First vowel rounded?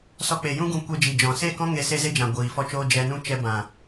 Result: yes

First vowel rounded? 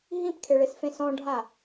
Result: no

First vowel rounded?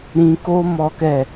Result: no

